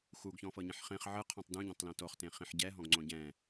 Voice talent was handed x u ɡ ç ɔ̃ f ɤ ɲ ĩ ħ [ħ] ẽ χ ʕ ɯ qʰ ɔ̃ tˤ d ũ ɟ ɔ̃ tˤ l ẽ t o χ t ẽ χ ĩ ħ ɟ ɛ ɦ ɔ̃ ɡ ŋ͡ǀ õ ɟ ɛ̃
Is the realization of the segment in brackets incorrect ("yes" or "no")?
yes